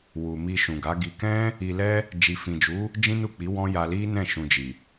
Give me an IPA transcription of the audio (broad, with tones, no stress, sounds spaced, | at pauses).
w u˨ m i˧ ʃ ũ˨ ɡ a˨˦ ɡ i˧ k ɛ̃˦ | i˧ l ɛ˦ | d͡ʒ i˨ f ĩ˨ d͡ʒ u˨˦ | d͡ʒ ĩ˦ n u˦˨ k͡p i˨˦ w ɔ̃˦ j a˧ l i˦ n ɛ̃˦˨ ʃ ũ˧ d͡ʒ i˨